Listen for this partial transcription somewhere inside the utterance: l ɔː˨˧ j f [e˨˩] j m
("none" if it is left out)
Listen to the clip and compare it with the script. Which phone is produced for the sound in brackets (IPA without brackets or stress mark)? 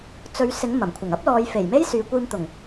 e˨˩